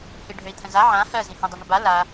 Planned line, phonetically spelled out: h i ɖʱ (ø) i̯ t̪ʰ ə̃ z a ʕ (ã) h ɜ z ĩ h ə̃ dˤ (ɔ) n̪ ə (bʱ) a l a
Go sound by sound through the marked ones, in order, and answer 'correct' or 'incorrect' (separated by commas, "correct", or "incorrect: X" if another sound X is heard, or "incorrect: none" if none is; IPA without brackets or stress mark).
correct, correct, incorrect: ə, incorrect: b